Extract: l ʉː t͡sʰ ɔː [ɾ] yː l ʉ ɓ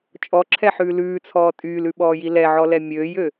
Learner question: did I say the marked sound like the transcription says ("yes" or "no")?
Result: no